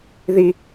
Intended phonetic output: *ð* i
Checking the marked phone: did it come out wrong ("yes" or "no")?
no